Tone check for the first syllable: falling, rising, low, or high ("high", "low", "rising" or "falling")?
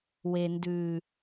low